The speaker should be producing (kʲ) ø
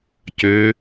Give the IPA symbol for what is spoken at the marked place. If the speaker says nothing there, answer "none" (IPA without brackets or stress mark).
c